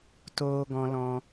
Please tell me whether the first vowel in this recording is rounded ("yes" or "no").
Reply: yes